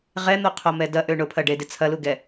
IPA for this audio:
ʁ ɛ n̪ o qʰ o m ɛ d ɐ ʔ ø ɳ ʊ pʰ ɐ ɖ e d ɪ t͡sʰ ɐ l u ɡ ɛ

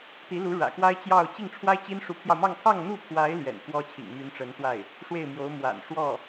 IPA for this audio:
t̪ i˧˥ l u˧˥ ɻ ä̰˨˩ k w a˥ ɪ̯ t͡ɕ j ɑ˥˧ ʊ̯ t͡ɕ i˥˩ ŋ ʈ͡ʂʰ w a˥ ɪ̯ t͡ɕ i˥ n ʂ u˧˥ pʰ j ɑ˧ ʊ̯ m ɑ˥˧ ŋ kʰ ɑ˥˧ ŋ n̪ u˥˩ pʰ w a˧˥ ɪ̯ l ɥ ɛ̰˨˩ n f w ɔ˥ t͡ɕʰ ḭ˨˩ ŋ m y˧˥ n ʈ͡ʂ ə˧˥ n t̪ w a˥˩ ɪ̯ | ʂ w e˥˩ ɪ̯ m j o˧˥ ʊ̯ m w a̰˨˩ n ʂ w ɔ˥˩

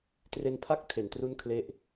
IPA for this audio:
t r e˧ n pʰ a˥˩ k̚ tʰ e˩˦ n t r u˥˩ n kʰ l e˥˩ ʔ

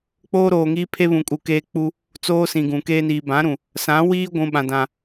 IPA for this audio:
k͡p oː˦ ɾ oː˨ ŋ iː˦ pʰ e˦ β ũ˨ kʼ u˨ k eː˦ k͡p u˦ | t͡s oː˦ s ĩ˨ ɡ ũ˨ k eː˦ n iː˨ b ã˨˦ ɾ ũ˨ | s ã˨˦ w iː˦ ɡʷ ũ˨ ɓ ã˨ d ã˨

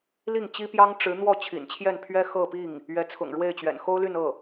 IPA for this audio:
l i˥˩ ŋ t͡ɕ i˥ p j ɑ˥ ŋ ʈ͡ʂ ɻ̩˧˥ n̪ w ɔ˥˩ t͡ɕʰ ḭ˨˩ n t͡ɕʰ j ɛ˥˩ n pʰ ɥ ɛ˥ x ɤ˥˧ p i˥˩ ŋ | ɥ ɛ˧˥ t͡sʰ ʊ̰˨˩ ŋ ɻ w e˥˩ ɪ̯ t͡ɕ ɥ ɛ̰˨˩ n x o˥ ʊ̯ l y˥˧ n ɤ˥˩

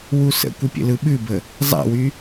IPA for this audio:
w u s ə̰ kʷ ə pʲ ə̰ l ɯ ɓ ʉ b ə | zˤ a̰ w y

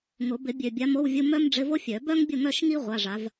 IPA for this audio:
ŋ ʊ˨˩˦ b ɪ˨˩˦ bʲ ø˨˩ bʲ a˨˥ m o˧˥˧ w vʲ u˧˥˧ m œ˥ m ɖ͡ʐ ɪ˧˥˧ v o˥ fʲ œ˨˩˦ b œ˥ ŋ bʲ ʊ˥˨ ŋ œ˥˨ ʃ ŋ i˥ ʁʷ a˧˥˧ ʐ a˨˥ v

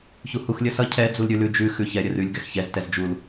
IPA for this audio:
ç u h u x lʲ ə s ʌ cʰ ɛ d͡z u l ɾʲ ʉ l ʉ d͡ʒ ʉ x ʉ ç ɛ ɾʲ ə r ʉ lʲ ɡ ɛ x ç ɛ z t ɛ z d͡ʒ u l

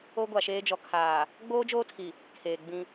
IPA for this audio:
o˦ ɡʷ a˨ ʃ eː˦ d͡ʒ ɔ˨ kʰ aː˨ | ɡ͡b oː˦ d͡ʒ oː˦ tʰ i˨ | kʰ eː˨ ɡ͡b ĩ˦

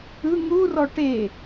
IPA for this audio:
ɯ ŋ u r ɔ ʈ e

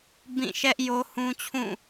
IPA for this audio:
b ĩ˦˨ ʃ ɛ˦ ʔ j o˦ h ũ˦ t͡ɕʰ ũ˦˨

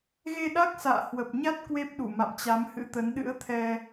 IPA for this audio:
ɣ e˧ ɗ a˦˥ k̚ s a̰ː˧˨ h w ə˨˩ p̚ ɲ a˦˥ t̚ k w e˦˥ p̚ ɗ u˧˩ m a̰˧˨ m t͡ɕ a˨˦ m h ɨ̰˧˥ t̪ ə˨˦ n ɗ ɨ̰˧˥ ə̯ t̪ʰ ɛ˧

